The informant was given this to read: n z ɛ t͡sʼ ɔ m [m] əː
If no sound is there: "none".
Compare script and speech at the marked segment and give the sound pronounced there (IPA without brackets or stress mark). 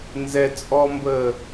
b